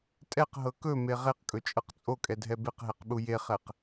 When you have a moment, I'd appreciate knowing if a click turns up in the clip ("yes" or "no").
no